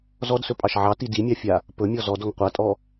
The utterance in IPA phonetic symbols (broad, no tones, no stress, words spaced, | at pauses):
zɔdsɵpʼɑʃ ʕɑti dimʲɑfʲa | pɵmʲɔ zɔd ɔŋqʷatʼɔ